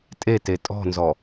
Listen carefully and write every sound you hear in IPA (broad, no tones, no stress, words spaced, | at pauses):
tʼete tʼɔ̤nzɔ